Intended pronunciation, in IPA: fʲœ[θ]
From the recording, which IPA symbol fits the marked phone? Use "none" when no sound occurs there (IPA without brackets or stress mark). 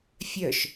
ʃ